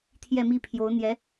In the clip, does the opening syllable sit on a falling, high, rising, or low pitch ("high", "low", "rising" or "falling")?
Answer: falling